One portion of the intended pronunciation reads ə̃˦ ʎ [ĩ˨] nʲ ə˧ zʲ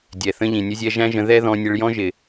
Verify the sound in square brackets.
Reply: correct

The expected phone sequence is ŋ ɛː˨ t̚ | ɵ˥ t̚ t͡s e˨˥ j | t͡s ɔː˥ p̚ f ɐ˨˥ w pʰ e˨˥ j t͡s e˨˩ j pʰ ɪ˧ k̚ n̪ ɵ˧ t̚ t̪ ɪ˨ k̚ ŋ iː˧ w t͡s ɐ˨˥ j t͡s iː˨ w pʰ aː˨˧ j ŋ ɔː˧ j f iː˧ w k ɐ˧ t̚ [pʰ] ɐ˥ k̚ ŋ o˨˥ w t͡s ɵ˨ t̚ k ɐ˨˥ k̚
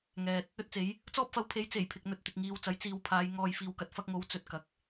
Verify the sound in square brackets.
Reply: incorrect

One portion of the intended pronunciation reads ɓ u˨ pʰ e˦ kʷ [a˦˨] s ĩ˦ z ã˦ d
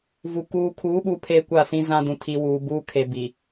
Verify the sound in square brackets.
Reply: correct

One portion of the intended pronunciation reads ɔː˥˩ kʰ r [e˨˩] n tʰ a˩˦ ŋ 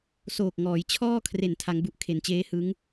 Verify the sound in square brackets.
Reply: correct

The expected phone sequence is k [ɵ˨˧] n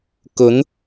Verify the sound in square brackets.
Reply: correct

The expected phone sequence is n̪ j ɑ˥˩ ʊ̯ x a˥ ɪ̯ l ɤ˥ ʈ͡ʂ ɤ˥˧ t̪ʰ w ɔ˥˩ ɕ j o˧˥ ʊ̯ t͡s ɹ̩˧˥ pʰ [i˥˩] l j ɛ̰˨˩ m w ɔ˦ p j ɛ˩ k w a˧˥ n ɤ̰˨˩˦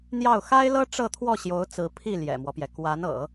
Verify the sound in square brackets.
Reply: correct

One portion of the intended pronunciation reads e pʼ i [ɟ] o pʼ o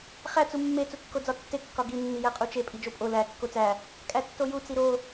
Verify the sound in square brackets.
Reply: incorrect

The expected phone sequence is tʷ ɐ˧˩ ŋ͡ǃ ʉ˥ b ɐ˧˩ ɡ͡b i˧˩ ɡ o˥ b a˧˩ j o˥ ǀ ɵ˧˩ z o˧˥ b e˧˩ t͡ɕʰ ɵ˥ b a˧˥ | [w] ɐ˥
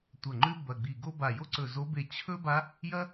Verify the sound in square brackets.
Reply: incorrect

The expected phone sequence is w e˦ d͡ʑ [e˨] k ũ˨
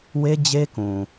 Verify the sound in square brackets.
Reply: incorrect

